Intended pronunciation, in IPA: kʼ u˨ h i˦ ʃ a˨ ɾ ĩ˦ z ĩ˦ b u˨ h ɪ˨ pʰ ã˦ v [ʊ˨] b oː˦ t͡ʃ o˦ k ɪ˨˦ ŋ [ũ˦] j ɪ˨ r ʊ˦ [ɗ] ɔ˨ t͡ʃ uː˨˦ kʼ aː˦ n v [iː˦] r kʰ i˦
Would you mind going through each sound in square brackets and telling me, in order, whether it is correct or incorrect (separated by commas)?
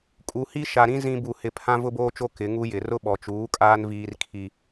incorrect, incorrect, incorrect, correct